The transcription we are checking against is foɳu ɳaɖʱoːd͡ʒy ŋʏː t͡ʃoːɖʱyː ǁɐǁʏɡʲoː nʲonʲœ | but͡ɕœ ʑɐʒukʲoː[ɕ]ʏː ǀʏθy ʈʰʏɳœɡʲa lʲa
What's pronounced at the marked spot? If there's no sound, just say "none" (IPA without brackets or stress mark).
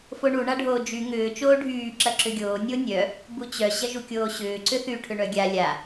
ɕ